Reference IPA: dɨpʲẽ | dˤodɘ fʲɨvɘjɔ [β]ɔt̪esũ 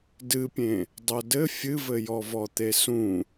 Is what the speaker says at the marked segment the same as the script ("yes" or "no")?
no